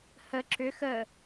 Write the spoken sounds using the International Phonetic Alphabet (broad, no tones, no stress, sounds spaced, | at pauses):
h ə ǁ ʏ x ə